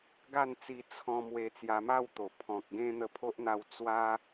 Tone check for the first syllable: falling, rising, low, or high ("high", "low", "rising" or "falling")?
falling